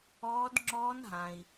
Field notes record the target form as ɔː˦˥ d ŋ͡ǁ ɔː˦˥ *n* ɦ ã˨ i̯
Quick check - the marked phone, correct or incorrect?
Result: correct